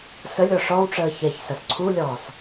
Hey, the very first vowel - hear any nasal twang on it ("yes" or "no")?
no